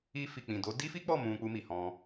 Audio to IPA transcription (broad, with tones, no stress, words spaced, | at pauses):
i˧fi˨k͡pĩ˨do˨˦ di˦fi˦k͡pɔ˦˨ mũ˧k͡pu˧mi˨ hɔ̃˧